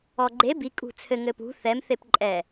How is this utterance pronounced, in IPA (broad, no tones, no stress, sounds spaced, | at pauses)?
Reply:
ɔ ɡ͡ǃ e b i kʼ ṳ t͡sʰ ɘ ŋ ɘ p ṳ θ ɛ m θ e p ǃʼ ɛ